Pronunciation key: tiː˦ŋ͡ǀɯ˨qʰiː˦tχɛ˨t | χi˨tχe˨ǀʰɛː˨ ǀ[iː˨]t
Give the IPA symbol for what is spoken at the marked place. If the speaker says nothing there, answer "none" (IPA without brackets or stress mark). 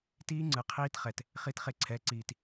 iː˨